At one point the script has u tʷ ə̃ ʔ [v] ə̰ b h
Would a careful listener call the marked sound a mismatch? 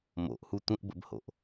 yes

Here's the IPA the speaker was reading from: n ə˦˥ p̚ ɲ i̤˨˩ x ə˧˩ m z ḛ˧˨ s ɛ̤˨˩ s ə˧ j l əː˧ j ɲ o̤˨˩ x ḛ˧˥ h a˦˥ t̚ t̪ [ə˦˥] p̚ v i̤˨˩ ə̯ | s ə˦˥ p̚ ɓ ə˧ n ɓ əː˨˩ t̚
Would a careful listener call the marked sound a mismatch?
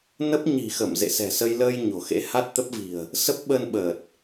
no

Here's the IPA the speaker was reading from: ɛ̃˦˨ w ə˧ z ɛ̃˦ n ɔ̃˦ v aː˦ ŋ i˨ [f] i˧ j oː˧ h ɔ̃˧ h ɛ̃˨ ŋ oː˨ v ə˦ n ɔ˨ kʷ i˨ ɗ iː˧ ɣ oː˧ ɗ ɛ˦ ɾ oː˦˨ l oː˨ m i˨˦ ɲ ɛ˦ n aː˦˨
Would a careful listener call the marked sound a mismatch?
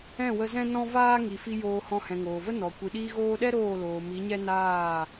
no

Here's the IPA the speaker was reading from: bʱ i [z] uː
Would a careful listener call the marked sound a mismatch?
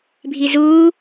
no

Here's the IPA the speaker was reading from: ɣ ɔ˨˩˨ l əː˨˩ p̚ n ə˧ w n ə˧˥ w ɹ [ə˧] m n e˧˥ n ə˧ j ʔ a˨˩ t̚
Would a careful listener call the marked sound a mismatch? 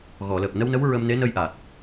no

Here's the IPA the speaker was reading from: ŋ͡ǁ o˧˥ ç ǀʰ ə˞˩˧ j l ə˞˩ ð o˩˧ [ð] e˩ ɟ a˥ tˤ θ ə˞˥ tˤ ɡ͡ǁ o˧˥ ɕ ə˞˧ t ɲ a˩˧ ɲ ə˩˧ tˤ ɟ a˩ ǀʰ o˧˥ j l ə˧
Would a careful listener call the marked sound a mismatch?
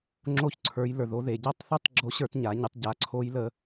no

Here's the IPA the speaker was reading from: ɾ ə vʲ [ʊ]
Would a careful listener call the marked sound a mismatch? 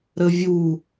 yes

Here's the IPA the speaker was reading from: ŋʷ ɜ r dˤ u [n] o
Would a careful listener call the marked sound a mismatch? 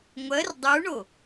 yes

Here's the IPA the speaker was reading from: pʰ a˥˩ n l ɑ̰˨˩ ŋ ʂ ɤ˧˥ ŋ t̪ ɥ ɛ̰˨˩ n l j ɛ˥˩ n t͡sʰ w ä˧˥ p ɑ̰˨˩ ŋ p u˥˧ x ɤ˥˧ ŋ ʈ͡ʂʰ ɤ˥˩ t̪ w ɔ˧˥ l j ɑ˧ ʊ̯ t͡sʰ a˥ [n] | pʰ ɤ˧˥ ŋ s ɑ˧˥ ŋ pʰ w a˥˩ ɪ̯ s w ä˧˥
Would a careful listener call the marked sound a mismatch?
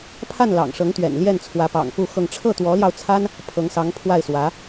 no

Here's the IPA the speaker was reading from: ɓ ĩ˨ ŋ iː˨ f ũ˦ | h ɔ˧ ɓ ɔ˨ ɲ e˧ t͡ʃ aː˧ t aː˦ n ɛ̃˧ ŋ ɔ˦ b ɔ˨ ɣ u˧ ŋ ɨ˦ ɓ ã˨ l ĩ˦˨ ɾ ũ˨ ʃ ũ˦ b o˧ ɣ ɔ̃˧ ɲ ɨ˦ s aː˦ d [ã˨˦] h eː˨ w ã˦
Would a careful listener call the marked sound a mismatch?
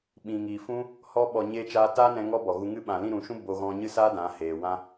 no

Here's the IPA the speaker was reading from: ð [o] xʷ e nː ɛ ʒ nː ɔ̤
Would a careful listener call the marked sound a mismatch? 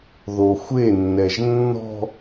no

